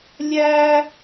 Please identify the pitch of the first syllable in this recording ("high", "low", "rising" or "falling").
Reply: high